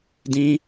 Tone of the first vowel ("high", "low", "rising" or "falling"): high